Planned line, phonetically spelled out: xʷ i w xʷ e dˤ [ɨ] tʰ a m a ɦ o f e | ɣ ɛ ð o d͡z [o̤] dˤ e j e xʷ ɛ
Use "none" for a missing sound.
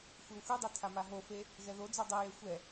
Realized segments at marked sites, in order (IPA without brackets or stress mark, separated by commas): ɛ, o